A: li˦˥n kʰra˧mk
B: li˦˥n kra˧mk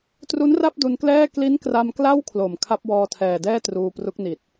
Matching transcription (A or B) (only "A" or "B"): B